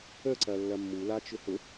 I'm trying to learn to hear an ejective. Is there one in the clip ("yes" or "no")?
no